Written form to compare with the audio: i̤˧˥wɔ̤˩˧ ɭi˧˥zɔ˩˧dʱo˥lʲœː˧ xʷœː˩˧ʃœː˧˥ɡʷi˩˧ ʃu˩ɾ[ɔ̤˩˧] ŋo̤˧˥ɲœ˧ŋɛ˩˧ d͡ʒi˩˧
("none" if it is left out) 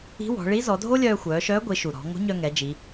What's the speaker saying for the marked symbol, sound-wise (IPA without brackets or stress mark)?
ɔ̤˩˧